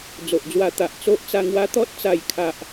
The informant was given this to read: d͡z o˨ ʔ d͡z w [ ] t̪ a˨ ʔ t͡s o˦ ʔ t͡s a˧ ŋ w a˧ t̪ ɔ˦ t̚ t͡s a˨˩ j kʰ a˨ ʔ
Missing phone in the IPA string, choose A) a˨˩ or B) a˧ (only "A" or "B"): B